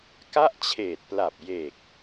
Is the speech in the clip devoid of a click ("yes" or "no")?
yes